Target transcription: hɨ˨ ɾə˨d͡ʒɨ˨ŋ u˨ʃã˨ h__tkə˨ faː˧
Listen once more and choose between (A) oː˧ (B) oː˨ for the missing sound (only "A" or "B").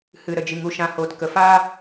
B